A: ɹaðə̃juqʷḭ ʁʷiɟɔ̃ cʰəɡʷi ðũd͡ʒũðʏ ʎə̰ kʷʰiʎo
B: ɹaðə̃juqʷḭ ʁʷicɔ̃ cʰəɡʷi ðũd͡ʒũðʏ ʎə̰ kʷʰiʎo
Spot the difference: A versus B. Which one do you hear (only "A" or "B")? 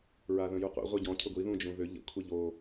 A